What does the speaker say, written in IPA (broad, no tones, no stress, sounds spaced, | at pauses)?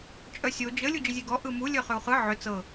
t͡ʃʼ œ sʲ o d͡ʒ ə lʲ u d͡ʒ ə zʲ e ɡ ɔ ʔ ɯ m u lʲ œ χ ʏ u̯ χ ɯ ʕ ʏ t͡s ɤ